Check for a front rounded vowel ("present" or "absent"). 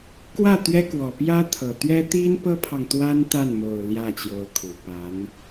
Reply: absent